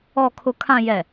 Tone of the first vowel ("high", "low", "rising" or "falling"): low